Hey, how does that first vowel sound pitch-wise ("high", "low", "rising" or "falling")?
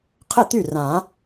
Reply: falling